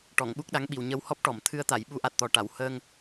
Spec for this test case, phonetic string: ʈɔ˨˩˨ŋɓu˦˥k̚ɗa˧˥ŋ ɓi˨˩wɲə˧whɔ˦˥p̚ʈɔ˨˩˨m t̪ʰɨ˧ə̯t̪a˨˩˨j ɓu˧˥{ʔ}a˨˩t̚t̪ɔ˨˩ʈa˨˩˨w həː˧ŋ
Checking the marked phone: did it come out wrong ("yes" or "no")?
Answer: no